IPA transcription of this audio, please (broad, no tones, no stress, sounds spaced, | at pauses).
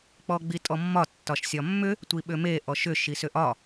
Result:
k͡p ɔ ɡ͡b i tʼ ɔ mː ɒ tː ɒ ʃ sʲ ɒ mː ʏ | tʷ i ɓ ʏ m e ʔ ɔ ʃ ʏ ʃ i s ʏ ʔ ɒ